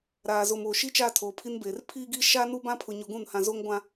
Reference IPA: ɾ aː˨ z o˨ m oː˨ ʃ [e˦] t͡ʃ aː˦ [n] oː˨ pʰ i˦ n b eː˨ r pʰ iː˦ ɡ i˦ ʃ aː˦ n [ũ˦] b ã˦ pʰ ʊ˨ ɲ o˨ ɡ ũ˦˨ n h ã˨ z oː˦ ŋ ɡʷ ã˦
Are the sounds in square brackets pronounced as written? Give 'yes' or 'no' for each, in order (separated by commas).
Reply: no, no, no